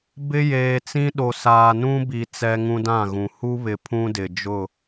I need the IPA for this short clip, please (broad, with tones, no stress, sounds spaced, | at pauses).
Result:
b ɪ˦ j eː˨ t͡s ĩ˦ ɗ o˨ s aː˨ n ũ˦ b i˨ t͡s ɛ˦ ŋ ũ˦ d ã˦˨ ɣ ũ˨ h u˦ β ɪ˨ pʰ ũ˦ d ɪ˨ d͡ʒ ʊ˦˨